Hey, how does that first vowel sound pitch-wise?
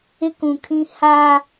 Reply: high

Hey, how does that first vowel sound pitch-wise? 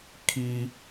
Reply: high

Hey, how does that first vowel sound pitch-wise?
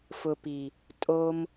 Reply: low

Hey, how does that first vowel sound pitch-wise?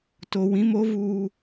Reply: low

